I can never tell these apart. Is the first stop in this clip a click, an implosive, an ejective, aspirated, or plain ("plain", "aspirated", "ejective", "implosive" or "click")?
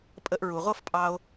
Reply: ejective